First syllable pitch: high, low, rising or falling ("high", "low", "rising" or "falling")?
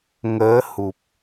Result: rising